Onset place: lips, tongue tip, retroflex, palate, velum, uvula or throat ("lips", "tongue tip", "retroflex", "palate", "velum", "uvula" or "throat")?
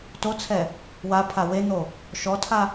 tongue tip